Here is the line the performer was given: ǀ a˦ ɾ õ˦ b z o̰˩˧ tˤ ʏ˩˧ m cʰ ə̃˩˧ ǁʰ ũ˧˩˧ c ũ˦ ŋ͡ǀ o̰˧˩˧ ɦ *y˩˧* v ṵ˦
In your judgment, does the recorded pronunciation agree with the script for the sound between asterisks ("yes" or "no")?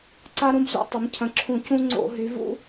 yes